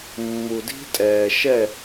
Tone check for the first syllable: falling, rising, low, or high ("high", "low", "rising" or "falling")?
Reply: low